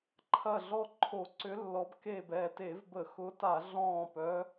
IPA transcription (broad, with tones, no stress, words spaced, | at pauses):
ǃʰɐ˧˩ɮɔ˧˩ ǃʰo˧˩˧ǀʏ˨˦lːɔ˨˦b ke˧˩bɛ˧˩te˧˩˧vbə˧˩˧ xʊ˨˦ta˧˩˧ɮɔ̃ː˧˩pœ˨˦